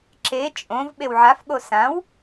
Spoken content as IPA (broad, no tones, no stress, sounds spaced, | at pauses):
ǁ e t͡ʃʼ õ v ɓ e w ʕ a f ɠ o s ã w